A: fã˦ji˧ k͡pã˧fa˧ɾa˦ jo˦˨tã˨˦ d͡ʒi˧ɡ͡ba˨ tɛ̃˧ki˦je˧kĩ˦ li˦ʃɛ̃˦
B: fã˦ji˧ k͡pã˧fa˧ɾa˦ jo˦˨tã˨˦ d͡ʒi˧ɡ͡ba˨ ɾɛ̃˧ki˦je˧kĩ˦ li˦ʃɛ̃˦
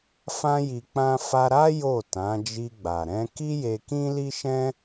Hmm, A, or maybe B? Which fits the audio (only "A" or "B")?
B